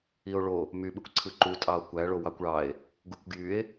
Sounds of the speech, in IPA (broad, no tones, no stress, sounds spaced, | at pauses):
i o̯ ɭ o | m y ɓ ɯ kʷ ǀʰ ɯ ǃ u tʼ ɑ o̯ kʷ æ ɭ o w ɑ kʷ ɭ ɑ e̯ | ɡ u kʷ ɡ j y e̯